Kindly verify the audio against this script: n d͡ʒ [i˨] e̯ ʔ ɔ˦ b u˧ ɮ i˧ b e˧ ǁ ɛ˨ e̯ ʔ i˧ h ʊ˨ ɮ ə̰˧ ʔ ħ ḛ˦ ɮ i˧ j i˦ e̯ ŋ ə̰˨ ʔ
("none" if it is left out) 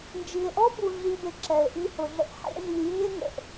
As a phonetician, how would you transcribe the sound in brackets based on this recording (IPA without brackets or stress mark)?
i˨